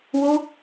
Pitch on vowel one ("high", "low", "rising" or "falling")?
high